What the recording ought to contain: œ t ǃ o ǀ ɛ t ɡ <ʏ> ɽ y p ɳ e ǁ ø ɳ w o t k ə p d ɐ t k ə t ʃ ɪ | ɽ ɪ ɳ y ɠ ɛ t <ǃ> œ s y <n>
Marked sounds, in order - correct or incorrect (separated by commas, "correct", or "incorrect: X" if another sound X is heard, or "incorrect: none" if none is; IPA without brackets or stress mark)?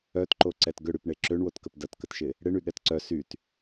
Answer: correct, incorrect: ǀ, incorrect: t